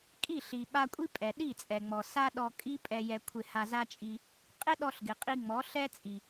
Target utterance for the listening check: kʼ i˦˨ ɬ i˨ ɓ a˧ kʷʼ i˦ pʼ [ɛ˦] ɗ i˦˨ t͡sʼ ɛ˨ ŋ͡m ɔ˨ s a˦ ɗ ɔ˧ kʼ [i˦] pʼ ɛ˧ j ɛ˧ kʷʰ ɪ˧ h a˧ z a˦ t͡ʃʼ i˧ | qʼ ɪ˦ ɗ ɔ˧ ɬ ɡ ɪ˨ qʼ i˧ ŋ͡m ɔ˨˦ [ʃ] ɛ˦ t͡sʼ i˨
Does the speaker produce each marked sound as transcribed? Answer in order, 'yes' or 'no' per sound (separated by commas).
no, yes, no